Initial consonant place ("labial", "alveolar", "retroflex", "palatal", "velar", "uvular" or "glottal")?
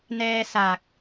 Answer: alveolar